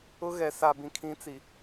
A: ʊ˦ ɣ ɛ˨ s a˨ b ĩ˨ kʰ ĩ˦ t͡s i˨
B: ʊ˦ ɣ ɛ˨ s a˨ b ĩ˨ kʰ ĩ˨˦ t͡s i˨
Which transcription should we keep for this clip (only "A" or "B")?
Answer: B